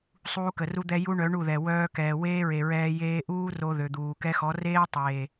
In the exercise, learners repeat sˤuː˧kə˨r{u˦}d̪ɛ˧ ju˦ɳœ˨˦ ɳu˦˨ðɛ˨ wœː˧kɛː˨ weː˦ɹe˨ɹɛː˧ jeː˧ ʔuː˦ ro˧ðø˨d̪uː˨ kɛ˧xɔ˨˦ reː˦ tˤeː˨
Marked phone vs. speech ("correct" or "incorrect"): incorrect